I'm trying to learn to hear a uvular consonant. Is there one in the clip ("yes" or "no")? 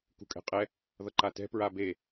yes